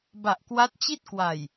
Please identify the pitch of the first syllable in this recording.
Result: low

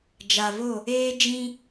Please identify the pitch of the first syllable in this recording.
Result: low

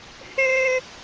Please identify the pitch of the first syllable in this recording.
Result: high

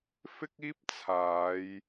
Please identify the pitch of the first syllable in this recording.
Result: high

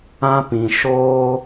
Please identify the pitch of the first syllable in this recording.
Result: high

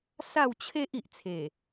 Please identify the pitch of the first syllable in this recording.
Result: falling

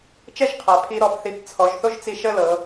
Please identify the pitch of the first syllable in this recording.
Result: falling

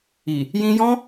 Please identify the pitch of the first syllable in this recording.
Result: low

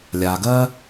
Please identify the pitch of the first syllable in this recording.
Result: low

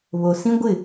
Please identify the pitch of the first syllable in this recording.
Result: low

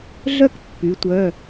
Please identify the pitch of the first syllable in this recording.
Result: high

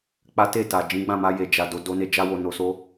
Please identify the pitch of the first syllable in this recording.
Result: high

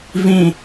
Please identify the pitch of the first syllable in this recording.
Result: falling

